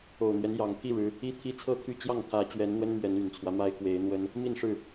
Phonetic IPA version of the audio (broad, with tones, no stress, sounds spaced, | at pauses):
o˨˩ ʊ̯ n̪ ɥ ɛ˦ n j ɑ˨˩ ŋ pʰ i˥˨ ɻ ɻ̩˨˦ | i˦ t̪ʰ i˦ t͡sʰ ɤ˥˨ t̪ʰ y˥˨ t͡ɕ j ɑ˥˨ ŋ t̪ʰ ä˨˦ t͡ɕ ɥ ɛ˨˦ n n̪ w ə˦ n m ɥ ɛ˨˦ n y˨˩ n t͡sʰ w ä˦ m a˦ ɪ̯ k w e˨˦ ɪ̯ n̪ w ə˦ n | m i˥˨ n ʂ ɻ̩˥˨